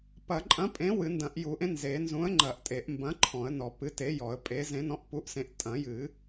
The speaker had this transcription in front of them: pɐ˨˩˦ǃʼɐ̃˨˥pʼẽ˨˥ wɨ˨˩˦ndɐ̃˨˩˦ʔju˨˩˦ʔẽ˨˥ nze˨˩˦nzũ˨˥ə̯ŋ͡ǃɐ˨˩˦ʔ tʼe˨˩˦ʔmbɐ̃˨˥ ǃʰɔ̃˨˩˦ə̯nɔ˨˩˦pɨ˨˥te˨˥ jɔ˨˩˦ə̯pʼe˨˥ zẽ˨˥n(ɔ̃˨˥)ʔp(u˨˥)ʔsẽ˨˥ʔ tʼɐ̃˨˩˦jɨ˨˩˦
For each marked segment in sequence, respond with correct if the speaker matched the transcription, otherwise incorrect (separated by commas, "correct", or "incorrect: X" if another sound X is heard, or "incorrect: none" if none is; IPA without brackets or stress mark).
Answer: correct, correct